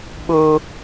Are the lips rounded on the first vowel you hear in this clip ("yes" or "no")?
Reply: yes